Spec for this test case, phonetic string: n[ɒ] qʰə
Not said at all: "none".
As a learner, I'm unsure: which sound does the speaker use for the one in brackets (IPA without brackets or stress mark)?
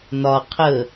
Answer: ɒ